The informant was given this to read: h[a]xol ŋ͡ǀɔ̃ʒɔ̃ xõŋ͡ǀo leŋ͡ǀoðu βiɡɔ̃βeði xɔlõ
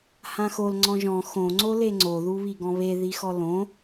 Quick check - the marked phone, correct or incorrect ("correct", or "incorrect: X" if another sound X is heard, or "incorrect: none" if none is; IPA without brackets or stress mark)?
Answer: incorrect: ã